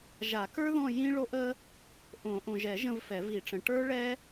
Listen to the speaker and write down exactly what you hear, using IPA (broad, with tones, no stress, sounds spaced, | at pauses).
ʒ a˨˩˦ k ə˞˦ ð ɔ̃˦˨ j ĩ˦ ɭ o˦ ʔ ə˦ | ʔ õ˨˩˦ ʔ õ˨ ʒ ɛ˨˩˦ ʒ ə̃˦˨ v f ɛ˨˩˦ v i˨˩˦ ʈ͡ʂ ə̃˨ ʈ ə˞˦ ɭ ɛ˦